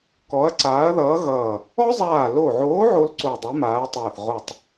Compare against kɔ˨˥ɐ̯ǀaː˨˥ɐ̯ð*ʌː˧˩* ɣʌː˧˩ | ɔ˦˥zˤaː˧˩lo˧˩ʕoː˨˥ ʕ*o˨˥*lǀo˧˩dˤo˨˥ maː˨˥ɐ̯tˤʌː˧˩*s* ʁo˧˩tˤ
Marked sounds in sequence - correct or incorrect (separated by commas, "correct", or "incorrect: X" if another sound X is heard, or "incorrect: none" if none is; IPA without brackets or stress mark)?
incorrect: ʌː˨˥, incorrect: o˦˥, incorrect: θ